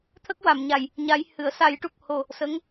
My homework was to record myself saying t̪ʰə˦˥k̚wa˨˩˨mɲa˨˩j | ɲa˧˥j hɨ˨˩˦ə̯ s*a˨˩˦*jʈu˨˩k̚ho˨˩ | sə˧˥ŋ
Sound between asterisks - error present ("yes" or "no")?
no